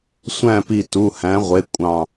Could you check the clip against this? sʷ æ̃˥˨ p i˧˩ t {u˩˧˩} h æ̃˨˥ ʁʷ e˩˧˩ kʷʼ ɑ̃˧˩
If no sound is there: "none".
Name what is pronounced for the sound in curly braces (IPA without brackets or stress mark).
u˩˧˩